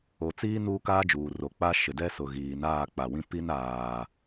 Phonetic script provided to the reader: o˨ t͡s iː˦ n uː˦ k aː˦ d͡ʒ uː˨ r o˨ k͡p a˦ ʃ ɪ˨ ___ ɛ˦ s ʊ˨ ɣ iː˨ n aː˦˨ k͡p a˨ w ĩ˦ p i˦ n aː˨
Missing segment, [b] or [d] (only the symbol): d